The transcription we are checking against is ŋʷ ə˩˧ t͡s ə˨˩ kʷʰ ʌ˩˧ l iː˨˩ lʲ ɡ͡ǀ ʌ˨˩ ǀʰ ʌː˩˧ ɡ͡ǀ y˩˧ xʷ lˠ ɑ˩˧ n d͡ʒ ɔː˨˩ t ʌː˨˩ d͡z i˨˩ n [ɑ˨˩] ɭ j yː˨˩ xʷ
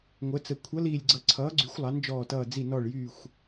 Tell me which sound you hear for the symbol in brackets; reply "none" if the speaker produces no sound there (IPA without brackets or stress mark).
ɔ˨˩